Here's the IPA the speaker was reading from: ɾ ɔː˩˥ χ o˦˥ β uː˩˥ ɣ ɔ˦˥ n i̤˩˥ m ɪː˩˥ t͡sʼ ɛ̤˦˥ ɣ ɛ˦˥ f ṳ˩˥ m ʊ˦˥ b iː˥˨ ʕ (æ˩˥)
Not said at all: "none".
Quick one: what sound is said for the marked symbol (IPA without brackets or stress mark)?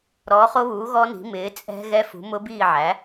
æ˩˥